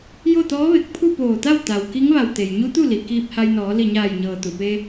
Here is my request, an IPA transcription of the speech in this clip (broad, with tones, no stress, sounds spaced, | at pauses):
j o˥˨ t̪ ɔː˧˥ ʋ e˧˩ k̚ pʰ u˥˨ p oː˧˩ t̪ a˥˨ w t̪ a˩ w k i˧˥ ŋ ʋ a˧˩ w t̪ e˩ j ɲ u˧˥ t̪ u˥˨ l i˩ k iː˧ p̚ h a˧ j n ɔː˩˧ l i˧˩ ɲ aː˧˩ j ɲ ɤː˩ t̪ u˩ p e˧